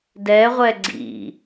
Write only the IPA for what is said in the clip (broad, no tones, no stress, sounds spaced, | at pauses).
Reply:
d ɛ ʁʷ ɛ ɡ͡ǀ ḭ